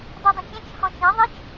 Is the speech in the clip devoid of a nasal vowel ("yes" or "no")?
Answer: no